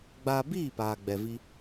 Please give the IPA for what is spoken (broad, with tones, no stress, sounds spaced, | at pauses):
ɡ͡b aː˧ b iː˦˨ p aː˨ ɡ͡b ɛ˧ v i˦